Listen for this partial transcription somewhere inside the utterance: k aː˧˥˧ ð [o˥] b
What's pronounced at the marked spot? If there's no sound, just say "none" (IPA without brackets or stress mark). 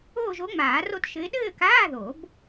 o˨˩˦